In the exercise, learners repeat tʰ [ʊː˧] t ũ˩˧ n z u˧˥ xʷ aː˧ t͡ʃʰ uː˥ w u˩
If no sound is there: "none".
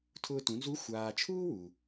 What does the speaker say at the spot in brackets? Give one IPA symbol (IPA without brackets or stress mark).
ʊː˧